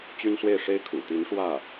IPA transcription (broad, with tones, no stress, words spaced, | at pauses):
t͡ɕy˥nswe˥˩ɪ̯ʂe˥ɪ̯ kʰṵ˨˩ t̪i˧˥nʂwä˥˩